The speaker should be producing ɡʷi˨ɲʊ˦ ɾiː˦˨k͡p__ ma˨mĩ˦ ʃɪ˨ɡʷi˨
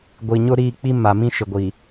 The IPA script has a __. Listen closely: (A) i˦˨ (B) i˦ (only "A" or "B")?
B